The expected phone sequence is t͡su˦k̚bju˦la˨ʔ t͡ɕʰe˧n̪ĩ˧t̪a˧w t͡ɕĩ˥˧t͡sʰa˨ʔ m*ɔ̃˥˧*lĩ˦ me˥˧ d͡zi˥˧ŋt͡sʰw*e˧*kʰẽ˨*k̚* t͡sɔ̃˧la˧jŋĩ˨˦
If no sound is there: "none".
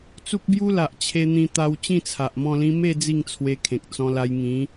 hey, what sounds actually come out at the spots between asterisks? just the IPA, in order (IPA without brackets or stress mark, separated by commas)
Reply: ɔ̃˥˧, e˧, k̚